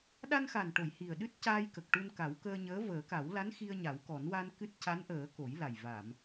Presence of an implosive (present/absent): present